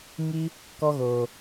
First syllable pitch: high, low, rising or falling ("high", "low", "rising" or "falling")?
high